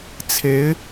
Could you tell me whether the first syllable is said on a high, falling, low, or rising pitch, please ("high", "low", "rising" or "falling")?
rising